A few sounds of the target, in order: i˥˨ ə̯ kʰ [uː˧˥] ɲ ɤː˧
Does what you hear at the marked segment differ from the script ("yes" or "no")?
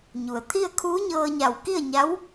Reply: no